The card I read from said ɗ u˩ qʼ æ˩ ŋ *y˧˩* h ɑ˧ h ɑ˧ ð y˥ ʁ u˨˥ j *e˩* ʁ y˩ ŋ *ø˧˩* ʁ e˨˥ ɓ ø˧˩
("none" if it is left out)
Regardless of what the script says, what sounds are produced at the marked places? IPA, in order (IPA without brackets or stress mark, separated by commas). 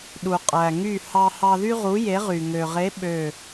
y˧˩, e˨˥, ø˩